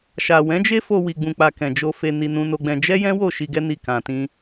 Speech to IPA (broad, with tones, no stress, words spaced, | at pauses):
ʃa˨wɛ̃˨˦d͡ʒe˦ fo˧wi˨ɡ͡bũ˨k͡pa˨ kɛ̃˨d͡ʒo˧ fe˧ni˧ nũ˧no˧ɡ͡bɛ̃˧ d͡ʒɛ˦jɛ̃˦wo˦˨ ʃi˧ɡɛ˦ ni˦˨kã˧tĩ˦